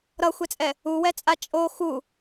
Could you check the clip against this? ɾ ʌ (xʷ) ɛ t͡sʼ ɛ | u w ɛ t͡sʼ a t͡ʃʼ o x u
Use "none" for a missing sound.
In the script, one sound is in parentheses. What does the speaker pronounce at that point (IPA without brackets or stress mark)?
xʷ